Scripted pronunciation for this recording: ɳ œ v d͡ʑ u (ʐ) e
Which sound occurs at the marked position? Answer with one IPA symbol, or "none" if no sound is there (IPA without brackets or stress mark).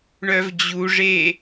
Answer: ʐ